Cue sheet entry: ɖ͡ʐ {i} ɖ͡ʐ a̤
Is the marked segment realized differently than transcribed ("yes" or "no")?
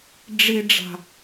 no